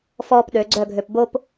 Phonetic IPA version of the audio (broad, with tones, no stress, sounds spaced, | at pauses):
f ɔː˧ p ɗ ø˩˧ ɡ͡ǀ œ˥˧ ɡʱ ø˧ p b o˥ p